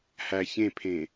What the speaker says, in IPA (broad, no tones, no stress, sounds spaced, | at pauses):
h æ ç ẽ pʰ ẽ